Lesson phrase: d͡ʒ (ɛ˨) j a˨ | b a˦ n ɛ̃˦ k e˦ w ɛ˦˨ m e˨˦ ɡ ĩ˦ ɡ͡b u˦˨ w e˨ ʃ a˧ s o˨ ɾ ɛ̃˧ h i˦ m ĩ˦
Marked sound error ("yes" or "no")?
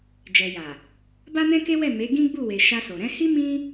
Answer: no